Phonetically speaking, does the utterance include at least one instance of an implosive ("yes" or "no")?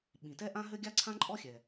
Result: yes